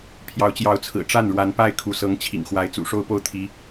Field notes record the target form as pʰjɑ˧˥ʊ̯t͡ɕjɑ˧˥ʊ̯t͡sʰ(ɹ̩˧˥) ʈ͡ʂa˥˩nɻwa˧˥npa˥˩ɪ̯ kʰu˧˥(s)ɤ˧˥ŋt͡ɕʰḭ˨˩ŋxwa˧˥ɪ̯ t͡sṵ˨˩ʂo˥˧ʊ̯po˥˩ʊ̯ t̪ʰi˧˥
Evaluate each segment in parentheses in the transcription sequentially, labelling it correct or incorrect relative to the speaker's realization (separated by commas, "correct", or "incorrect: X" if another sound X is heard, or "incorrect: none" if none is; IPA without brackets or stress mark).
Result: incorrect: ɹ̩˨˩, correct